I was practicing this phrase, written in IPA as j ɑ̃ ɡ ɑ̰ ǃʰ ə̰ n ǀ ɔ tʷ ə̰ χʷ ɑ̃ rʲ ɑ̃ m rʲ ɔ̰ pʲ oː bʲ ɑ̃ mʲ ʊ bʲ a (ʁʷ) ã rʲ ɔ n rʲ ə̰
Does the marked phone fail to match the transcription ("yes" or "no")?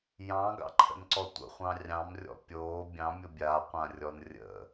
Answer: yes